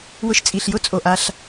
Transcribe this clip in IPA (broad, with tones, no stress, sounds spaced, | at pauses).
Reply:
w ʊ˧ ʃ t͡sʼ i˩ ɬ j ʊ˥ t͡sʼ o˩ ʔ a˧ ɬ